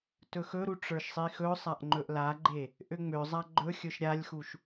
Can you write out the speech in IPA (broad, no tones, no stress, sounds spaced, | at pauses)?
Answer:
t ɵ x ɵ ɾ u ʈ͡ʂ ə˞ ʃ sˤ i x ɵ sˤ a ʔ ŋ͡ǃ ɵ ʔ l a ɡ͡ǃ e | ʔ ø ŋ͡m ø zˤ a ɡ͡ǃ ɵ xʲ ɵ ʃ ɾʲ a lʲ x u ʃ